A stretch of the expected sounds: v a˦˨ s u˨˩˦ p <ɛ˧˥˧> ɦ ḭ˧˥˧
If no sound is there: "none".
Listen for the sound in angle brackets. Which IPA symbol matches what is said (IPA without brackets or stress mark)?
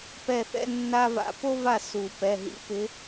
ɛ˩˧˩